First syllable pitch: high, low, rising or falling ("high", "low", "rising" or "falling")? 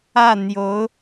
falling